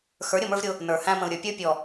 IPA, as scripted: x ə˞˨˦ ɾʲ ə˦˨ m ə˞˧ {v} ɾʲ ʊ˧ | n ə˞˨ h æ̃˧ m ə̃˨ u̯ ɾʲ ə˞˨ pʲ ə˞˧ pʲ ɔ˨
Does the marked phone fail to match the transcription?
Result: no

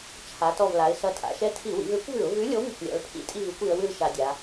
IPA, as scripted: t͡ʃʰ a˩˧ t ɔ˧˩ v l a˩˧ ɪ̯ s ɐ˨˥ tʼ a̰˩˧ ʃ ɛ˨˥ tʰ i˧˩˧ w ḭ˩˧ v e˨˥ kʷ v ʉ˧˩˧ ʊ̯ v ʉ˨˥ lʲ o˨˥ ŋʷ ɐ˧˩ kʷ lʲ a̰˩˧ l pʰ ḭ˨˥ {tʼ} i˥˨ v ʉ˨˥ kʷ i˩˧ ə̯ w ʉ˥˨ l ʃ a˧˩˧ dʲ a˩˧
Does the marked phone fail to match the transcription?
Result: no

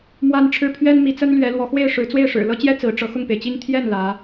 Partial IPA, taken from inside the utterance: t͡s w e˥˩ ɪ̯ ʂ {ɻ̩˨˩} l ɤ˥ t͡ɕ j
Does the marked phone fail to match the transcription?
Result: no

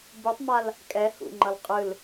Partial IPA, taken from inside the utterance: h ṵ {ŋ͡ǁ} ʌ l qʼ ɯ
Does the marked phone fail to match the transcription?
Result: yes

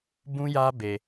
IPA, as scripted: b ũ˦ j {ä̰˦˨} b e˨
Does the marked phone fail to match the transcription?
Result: yes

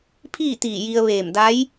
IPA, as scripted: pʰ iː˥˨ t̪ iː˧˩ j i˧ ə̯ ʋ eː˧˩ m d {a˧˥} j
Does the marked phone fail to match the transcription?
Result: no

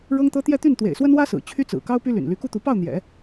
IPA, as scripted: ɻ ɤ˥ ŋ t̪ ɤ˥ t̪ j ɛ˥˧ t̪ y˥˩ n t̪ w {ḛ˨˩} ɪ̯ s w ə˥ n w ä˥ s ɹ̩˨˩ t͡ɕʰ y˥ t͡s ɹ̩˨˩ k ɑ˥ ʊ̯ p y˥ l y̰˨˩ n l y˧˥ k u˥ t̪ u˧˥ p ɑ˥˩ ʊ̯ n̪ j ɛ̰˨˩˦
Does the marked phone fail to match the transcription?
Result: no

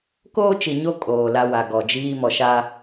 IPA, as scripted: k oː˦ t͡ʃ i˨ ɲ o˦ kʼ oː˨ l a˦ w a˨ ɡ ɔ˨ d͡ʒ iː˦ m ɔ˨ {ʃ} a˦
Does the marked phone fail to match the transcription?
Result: no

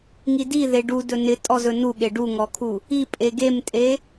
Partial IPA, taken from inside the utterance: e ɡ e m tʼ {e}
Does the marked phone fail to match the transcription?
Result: no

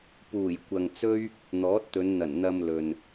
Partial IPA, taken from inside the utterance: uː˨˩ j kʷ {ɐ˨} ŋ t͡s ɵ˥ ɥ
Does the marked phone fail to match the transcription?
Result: no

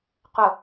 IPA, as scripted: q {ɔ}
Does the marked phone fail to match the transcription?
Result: yes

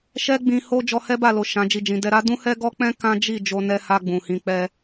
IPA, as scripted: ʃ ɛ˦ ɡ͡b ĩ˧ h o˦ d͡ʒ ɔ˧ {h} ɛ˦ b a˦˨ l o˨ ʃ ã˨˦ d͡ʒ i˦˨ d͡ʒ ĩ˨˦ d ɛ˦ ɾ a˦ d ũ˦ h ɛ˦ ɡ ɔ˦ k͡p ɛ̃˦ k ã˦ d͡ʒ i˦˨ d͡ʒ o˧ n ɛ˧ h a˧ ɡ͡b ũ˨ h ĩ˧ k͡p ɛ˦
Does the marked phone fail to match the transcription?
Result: no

